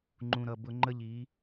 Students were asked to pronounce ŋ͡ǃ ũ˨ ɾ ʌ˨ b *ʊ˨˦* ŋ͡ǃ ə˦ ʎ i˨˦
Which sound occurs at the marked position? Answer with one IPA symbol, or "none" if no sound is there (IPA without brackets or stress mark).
ʊ˦